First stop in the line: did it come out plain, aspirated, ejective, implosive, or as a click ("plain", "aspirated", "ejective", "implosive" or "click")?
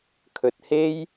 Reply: aspirated